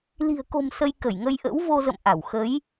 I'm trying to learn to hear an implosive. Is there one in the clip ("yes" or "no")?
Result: no